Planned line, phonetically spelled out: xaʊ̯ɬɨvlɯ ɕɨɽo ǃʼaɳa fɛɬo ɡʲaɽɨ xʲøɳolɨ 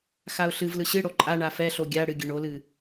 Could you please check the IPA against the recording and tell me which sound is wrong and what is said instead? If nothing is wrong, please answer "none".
xʲ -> ɡʲ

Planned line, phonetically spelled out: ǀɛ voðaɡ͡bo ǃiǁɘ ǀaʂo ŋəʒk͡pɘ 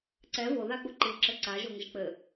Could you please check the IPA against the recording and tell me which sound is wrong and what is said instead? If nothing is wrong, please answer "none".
ʂ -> ʒ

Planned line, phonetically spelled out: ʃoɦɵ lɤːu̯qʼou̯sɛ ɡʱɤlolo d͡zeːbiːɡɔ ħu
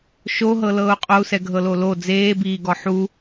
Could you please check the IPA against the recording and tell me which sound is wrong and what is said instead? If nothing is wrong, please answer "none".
ɵ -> ɤ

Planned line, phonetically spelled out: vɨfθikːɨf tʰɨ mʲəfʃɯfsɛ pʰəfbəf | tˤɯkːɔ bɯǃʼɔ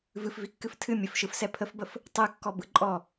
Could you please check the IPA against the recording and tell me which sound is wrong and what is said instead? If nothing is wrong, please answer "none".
θ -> v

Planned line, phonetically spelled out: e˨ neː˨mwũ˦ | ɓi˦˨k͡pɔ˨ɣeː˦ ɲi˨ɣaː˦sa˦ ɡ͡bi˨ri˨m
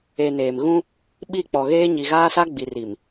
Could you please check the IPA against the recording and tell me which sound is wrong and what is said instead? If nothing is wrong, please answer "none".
w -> ɣ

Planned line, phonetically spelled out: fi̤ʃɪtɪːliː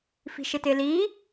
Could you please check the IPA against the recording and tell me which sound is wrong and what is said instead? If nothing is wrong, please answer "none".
none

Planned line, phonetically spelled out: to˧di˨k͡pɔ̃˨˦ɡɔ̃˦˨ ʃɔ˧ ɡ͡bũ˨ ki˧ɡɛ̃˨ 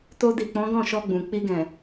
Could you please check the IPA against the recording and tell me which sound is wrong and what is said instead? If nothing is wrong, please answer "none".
k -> k͡p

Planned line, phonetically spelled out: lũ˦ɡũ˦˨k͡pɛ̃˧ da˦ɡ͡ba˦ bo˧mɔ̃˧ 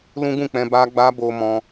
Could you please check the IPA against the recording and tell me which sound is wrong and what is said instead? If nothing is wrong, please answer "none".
d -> b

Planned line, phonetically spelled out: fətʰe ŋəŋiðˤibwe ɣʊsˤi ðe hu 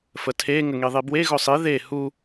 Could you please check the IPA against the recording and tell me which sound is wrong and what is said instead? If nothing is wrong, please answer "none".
none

